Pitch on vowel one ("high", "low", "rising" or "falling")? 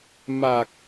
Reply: low